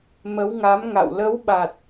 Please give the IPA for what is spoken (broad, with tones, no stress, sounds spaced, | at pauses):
m ə˨˦ w ŋ a˨˦ m ŋ a̰˧˨ w l ə˨˦ w ɓ a˨˩ t̚